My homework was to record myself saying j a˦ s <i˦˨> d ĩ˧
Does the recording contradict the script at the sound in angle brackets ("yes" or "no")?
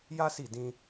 no